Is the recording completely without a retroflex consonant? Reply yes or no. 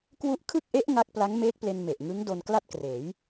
yes